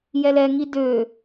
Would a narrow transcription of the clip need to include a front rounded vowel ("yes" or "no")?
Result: yes